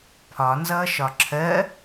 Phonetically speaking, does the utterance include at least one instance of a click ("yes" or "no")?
yes